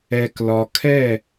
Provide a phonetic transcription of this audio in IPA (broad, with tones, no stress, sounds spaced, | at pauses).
ɛ˨ k l ɒ˨ kʰ ɛ˦˨